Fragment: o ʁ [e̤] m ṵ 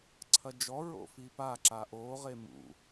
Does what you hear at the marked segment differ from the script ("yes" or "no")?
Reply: yes